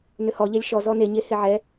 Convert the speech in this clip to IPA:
nʏhɔ ʎɛlʲʃɔ zɔneɲe heʕɛ

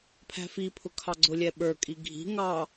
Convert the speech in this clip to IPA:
pʰæ̤fipʰʊ kʰɑɡ͡ǀʊlʲɛ ɓə˞kʼi ɡʱi̤ ŋɑ

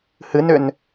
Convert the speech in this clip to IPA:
hɨnʏn

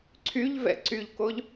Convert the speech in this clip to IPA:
ǀʰyʎvɛ̰ ǀyʎkoʎ

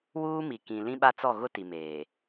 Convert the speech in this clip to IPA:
wuː˦mi˨kĩ˨ lĩ˦ɓa˦t͡sɔ˦˨ ɣʊ˦ti˨ meː˨

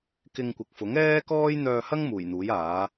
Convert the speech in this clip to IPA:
kɪ˧ŋkʷɪ˨k̚fʊ˨˥ŋ ɛː˥kɔː˥j n̪œː˧hɐ˥ŋ muː˨˩jn̪uː˨˥jaː˨˥

